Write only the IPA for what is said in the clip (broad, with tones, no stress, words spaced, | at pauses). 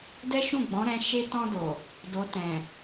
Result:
dɛ˦ʃũ˦˨ ɡ͡bɔ̃˨˦ɾɛ̃˧ ʃe˧tɔ̃˧do˨ | do˨tɛ̃˨